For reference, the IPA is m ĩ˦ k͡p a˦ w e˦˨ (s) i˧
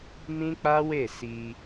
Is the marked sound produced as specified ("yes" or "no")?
yes